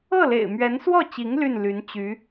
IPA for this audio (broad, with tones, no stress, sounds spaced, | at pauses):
ɤ˥˩ l ḛ˨˩ ɪ̯ m ɥ ɛ˧˥ n s w ɔ˥˩ t͡ɕ i˧˥ ŋ l y˥˩ n l y˧˥ n t͡ɕ y˧˥